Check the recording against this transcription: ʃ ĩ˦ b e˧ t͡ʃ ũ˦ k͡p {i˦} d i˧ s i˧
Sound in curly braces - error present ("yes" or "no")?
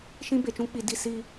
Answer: yes